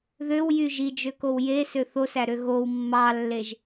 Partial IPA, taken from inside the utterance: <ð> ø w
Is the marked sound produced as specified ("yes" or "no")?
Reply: yes